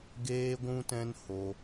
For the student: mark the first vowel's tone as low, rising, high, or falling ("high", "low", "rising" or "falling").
high